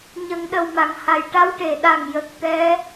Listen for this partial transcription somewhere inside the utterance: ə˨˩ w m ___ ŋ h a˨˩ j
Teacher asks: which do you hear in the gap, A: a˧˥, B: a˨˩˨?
B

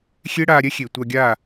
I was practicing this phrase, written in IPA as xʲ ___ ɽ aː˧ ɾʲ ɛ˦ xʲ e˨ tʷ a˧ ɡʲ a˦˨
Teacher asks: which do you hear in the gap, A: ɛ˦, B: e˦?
B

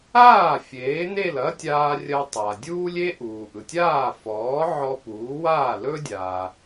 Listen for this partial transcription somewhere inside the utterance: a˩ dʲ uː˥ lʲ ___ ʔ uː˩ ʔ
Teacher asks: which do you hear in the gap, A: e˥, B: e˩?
A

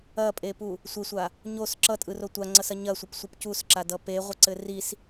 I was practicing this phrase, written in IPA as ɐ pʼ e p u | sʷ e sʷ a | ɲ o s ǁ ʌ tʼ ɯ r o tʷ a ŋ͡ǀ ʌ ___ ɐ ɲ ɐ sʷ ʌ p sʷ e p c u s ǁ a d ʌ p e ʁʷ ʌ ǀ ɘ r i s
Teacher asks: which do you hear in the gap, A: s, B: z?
A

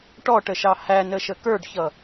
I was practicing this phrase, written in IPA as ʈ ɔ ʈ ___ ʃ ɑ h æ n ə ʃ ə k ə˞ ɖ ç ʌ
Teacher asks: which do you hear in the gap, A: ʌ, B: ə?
B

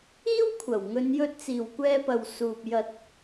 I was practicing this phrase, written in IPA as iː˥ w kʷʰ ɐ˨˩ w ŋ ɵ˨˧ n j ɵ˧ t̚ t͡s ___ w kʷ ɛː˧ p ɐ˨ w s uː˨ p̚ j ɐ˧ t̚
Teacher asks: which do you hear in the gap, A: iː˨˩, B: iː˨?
A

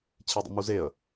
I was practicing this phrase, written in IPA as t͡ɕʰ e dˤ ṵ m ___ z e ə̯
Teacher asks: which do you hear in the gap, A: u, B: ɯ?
A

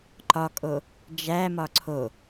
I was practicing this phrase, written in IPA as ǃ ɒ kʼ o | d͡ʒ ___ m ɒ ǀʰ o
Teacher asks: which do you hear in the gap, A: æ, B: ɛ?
A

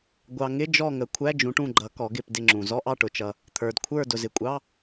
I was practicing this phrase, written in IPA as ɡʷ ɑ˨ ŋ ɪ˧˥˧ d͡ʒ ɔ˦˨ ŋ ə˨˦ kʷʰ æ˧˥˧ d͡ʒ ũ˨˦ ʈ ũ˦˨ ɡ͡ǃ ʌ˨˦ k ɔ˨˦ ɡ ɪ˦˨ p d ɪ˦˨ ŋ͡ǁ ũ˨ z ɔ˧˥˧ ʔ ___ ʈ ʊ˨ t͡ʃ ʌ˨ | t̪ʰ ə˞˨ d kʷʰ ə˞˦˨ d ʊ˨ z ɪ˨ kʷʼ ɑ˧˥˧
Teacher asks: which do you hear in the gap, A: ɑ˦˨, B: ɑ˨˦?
A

